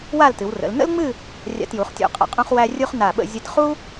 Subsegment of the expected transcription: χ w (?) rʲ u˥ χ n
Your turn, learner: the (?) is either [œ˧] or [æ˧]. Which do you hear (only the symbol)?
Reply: æ˧